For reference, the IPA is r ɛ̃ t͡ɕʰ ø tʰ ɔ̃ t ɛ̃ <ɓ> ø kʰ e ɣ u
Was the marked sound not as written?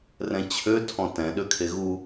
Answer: yes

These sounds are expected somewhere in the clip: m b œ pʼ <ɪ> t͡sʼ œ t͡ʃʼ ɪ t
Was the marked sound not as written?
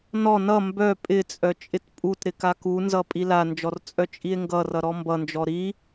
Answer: no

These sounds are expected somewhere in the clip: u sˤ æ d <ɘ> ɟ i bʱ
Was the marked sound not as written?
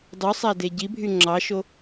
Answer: yes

